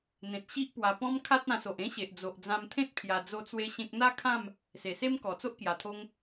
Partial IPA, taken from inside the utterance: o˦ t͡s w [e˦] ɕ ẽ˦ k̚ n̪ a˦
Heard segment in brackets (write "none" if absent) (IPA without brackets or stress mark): e˦